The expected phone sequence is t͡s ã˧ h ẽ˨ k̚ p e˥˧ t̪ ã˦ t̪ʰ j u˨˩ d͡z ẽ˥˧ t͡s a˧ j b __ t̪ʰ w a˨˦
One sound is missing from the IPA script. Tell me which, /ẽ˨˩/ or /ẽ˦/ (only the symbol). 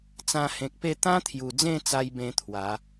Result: ẽ˦